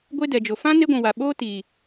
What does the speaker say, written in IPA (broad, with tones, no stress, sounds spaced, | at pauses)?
ɡʷ e˦ d ɛ˨ d͡ʒ o˨ f ã˦ n e˦ ɡʷ ũ˨ w a˨ ɓ oː˦ t iː˨